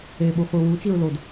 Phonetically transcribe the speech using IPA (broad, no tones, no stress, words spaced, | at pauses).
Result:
eɓuχʷi wut͡ʃiɹ lod